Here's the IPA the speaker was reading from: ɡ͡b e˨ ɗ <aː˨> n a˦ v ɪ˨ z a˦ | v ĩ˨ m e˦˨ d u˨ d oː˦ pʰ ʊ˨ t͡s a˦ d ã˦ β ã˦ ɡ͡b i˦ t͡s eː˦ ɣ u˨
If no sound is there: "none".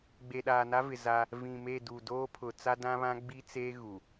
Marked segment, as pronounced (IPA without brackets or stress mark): aː˨